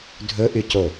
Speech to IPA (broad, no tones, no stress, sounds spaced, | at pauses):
dʱ ɵ ʔ y c o